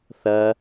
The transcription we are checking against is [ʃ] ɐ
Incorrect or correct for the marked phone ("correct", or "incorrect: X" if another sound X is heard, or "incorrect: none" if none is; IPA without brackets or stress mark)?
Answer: incorrect: θ